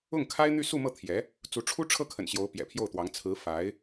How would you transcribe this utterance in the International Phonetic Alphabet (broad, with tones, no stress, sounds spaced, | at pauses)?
ʊ˥˩ ŋ kʰ a˥ ɪ̯ n̪ y˥˧ s u˥˧ m ɤ˥˩ t̪ʰ j ɛ˧˥ | t͡s u˧˥ ʈ͡ʂʰ u˥ ʈ͡ʂʰ ɤ˥˩ kʰ ə̰˨˩ n ɕ j o˧˥ ʊ̯ p j ɛ̰˨˩ pʰ j o˥˩ ʊ̯ t̪ w ɑ˧˥ ŋ t͡sʰ ɹ̩˧˥ f a˧˥ ɪ̯